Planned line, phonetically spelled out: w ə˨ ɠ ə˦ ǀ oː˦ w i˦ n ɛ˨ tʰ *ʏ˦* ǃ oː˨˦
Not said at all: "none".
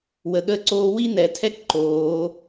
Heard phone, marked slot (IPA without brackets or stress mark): ɛ˦